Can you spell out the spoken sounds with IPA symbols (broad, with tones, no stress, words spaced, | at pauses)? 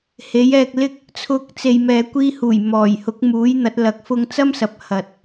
he˨˥jɛː˧k̚lɪ˥k̚ | t͡sʰʊ˧k̚ t͡se˨jmɛː˨ kʷiː˧huː˨˩jmɔː˨˩j hʊ˨˥k̚muː˨˥jn̪ɐ˨˥t̚ lɐ˨k̚ fʊ˧ŋt͡sɐ˥msɐ˨p̚ hɐ˨t̚